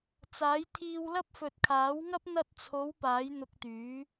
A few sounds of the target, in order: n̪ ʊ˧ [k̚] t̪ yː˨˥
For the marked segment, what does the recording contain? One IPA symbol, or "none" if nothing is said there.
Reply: k̚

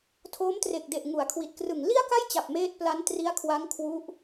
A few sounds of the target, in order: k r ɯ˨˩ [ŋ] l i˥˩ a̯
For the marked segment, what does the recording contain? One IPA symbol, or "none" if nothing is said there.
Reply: ŋ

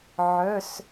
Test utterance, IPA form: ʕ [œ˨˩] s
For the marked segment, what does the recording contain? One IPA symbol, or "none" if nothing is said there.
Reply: œ˧˥˧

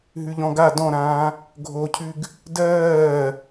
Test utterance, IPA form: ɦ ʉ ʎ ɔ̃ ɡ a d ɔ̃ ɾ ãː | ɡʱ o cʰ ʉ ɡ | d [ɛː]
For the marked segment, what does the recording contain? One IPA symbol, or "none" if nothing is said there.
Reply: ɜː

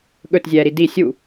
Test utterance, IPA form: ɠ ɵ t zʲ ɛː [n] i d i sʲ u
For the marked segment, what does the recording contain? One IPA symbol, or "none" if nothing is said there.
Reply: ɾ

